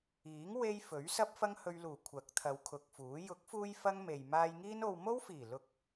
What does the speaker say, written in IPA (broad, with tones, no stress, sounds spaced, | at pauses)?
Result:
iː˨˥ ŋ w e˥ j f ɵ˨˥ ɥ s ɐ˥ p̚ f ɐ˥ ŋ h ɵ˧ ɥ l uː˨˩ kʷʰ ɐ˨˥ k̚ t̪ʰ ɐ˨˧ w kʰ ʊ˨ k̚ f uː˨˥ j ʊ˨˥ k̚ f uː˧ j f ɐ˥ ŋ m e˨ j m aː˧ j ŋ iː˥ n o˧ w m o˥ w f iː˨˩ l ʊ˨ k̚